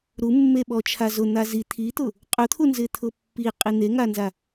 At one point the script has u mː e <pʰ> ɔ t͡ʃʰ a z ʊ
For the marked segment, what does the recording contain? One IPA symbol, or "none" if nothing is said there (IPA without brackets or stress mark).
ɓ